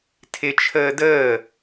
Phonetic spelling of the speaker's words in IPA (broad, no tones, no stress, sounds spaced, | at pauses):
tʰ ɪ t͡ʃʰ əː d əː